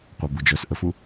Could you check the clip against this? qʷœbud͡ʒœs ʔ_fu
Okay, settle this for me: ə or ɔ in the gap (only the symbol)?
ə